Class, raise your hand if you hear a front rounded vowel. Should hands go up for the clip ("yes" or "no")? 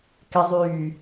yes